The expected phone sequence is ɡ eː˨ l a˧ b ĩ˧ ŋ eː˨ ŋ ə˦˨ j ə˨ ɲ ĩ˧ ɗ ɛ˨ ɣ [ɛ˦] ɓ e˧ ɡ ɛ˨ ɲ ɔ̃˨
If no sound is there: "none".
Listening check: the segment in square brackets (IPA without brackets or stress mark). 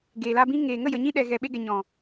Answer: ɛ˨